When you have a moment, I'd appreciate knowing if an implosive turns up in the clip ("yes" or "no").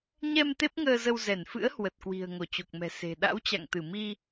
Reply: yes